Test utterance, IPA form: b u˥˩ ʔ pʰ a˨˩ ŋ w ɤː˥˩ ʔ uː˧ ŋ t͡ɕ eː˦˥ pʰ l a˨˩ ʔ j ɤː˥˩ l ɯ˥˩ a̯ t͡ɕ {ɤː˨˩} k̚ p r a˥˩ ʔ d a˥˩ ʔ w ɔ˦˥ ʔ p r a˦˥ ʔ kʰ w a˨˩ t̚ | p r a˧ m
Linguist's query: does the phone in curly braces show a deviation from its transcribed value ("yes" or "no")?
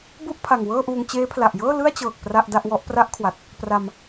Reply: no